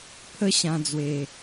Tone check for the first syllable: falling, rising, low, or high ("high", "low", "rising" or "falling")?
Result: high